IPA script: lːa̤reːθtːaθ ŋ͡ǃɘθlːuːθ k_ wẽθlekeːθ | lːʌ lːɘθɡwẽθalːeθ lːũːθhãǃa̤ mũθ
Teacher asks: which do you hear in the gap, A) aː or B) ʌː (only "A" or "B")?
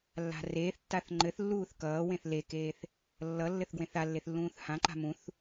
B